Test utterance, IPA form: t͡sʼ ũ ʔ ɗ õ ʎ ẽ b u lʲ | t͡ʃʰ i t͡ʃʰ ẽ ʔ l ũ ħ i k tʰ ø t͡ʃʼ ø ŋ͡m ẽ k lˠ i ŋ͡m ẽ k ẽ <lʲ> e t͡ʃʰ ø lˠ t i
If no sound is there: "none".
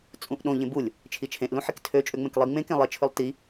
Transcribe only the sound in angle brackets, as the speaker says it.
lˠ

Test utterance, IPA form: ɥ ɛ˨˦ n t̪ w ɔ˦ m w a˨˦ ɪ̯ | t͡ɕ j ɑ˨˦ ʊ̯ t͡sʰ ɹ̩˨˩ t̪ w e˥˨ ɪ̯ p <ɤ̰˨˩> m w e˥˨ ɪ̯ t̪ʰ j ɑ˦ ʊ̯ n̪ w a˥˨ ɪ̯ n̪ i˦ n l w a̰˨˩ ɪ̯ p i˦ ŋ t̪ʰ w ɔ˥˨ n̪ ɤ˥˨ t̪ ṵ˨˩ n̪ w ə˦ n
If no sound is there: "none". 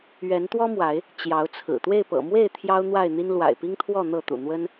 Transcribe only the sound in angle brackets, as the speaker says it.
ɤ̰˨˩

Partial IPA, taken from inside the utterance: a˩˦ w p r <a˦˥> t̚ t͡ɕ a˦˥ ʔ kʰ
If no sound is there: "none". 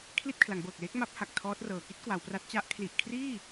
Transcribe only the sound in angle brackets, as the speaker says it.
a˦˥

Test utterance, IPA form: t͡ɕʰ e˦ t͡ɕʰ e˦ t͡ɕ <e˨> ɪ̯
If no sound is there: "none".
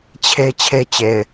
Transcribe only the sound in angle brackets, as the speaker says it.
e˨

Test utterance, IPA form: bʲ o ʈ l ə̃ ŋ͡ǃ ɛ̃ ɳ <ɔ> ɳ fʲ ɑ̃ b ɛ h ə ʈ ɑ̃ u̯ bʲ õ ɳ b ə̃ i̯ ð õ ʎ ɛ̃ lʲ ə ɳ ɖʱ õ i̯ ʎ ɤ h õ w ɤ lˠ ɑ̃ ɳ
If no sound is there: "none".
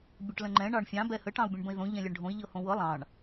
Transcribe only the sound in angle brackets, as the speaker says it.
ɑ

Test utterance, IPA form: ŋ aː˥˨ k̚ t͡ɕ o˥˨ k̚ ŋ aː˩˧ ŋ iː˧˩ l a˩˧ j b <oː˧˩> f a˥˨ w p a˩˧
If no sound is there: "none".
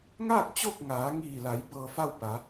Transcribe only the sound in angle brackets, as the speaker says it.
ɤː˧˩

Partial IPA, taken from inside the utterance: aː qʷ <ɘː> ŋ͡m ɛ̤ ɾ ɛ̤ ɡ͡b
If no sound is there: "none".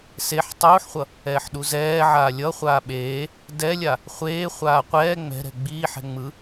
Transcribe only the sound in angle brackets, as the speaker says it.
ɛː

